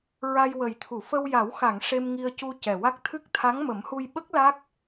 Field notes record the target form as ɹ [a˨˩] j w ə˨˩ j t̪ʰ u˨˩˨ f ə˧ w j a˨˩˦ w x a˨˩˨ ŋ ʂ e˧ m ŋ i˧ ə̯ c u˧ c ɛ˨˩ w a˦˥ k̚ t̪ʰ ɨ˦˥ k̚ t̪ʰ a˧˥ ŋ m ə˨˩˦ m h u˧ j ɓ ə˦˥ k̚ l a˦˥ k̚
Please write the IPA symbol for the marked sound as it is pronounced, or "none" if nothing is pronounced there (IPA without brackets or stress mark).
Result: a˧